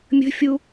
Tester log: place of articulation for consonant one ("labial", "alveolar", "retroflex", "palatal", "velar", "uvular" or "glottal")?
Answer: labial